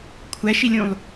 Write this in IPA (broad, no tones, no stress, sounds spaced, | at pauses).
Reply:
kʷʰ æ ʃ i lʲ ũ lˠ